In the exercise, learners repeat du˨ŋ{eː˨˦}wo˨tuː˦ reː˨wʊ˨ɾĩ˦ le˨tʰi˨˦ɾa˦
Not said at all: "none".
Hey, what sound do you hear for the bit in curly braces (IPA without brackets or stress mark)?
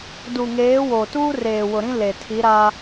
eː˨˦